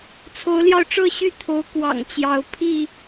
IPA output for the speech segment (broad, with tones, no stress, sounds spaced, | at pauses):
t͡sʰ o˨˦ ʊ̯ l j ɑ˧ ʊ̯ ʈ͡ʂ ɤ˥˨ ɕ y˥˨ t̪ʰ o˨˦ ʊ̯ k w ɑ̰˨˩ ŋ t͡ɕ j ɑ˨˦ ʊ̯ pʰ i˥˨